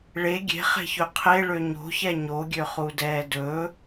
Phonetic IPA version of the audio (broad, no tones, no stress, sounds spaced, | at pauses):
ɭ e ɡʲ e̤ χ e̤ ç ɵ qʰ e ɭ ø ɲ o̤ ç ɛ ɲ o ɡʲ ø χ u d ɛː d ɵ